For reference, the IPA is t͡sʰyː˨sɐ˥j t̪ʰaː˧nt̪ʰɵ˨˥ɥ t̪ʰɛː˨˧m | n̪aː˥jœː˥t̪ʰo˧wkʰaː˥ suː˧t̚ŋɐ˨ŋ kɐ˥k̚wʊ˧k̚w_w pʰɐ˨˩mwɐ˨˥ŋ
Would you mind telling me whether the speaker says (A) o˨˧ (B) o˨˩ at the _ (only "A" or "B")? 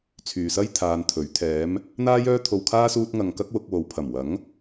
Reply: A